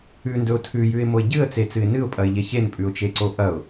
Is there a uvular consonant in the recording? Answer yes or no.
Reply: no